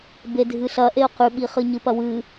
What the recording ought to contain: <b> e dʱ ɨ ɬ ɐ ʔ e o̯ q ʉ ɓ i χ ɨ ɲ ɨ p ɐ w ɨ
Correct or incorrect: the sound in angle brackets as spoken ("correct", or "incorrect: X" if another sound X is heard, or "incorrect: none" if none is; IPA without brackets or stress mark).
correct